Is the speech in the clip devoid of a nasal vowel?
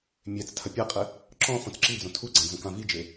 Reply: no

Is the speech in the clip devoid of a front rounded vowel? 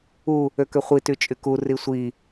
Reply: no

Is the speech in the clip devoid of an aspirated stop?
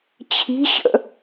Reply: no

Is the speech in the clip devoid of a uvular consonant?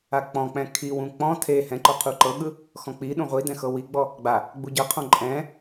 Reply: no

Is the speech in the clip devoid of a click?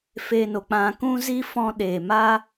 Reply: yes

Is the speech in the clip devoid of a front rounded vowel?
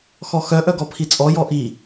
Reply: no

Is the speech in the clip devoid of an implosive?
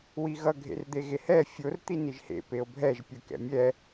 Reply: yes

